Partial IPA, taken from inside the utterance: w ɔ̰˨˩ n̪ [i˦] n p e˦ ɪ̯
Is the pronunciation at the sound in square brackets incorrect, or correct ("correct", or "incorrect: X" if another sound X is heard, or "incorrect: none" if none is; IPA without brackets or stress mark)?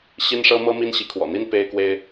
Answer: correct